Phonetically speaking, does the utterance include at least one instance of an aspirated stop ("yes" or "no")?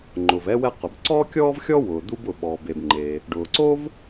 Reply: no